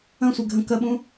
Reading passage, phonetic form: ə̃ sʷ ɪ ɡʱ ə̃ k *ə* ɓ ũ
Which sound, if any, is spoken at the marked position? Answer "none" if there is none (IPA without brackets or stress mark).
ə